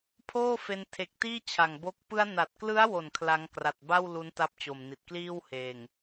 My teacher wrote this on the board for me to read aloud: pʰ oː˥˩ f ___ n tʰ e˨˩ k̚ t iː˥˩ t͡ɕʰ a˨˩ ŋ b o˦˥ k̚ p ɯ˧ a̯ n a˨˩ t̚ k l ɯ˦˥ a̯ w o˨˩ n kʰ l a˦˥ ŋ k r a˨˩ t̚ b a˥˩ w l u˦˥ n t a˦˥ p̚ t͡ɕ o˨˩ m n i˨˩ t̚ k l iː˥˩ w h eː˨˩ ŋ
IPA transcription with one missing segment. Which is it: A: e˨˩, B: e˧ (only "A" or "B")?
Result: B